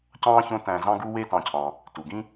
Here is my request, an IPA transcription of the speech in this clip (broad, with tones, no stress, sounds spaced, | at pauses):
c ɑ̃ː˥ ç õ˦ t æ̃˨ z ɑ̃˦ ɡ u˦ w e˦ t ɑ̃˨ cʰ ɑ̃˩ | t u˩ ɡ ĩ˦